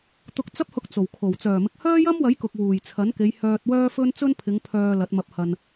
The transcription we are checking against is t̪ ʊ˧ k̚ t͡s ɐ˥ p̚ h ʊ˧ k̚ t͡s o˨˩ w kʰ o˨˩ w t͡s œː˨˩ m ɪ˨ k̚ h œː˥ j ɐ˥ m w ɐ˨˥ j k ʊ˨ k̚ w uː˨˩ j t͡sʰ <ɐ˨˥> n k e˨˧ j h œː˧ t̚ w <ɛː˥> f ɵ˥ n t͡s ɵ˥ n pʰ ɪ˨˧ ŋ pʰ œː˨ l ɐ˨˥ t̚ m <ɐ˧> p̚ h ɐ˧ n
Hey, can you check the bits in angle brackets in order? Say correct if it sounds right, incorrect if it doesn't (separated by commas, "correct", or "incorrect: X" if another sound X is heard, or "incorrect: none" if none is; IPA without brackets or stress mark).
correct, incorrect: œː˥, correct